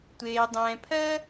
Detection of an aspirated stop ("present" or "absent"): present